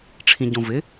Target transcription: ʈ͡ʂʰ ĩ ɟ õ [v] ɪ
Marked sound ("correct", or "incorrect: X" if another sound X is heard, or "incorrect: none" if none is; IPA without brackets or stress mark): correct